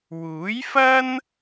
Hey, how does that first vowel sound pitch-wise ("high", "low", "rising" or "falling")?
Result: rising